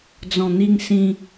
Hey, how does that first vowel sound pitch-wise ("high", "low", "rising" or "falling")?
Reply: low